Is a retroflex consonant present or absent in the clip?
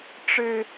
present